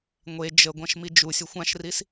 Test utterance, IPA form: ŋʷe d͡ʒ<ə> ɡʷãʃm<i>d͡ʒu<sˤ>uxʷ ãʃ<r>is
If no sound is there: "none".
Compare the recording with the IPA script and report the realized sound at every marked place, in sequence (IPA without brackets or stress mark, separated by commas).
ə, i, sʲ, r